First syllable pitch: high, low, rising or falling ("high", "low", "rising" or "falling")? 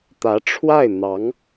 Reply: rising